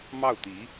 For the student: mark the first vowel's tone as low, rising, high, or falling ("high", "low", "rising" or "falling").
falling